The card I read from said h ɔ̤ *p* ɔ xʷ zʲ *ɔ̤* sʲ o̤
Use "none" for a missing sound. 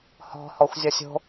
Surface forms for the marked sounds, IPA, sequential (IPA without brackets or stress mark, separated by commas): h, ɔ